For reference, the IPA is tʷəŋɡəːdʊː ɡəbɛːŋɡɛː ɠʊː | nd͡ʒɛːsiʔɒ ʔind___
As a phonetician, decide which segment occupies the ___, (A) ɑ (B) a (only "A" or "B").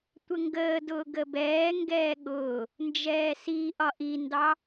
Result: A